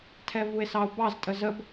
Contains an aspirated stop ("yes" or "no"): yes